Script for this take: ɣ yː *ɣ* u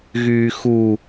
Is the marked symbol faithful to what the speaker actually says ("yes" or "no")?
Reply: no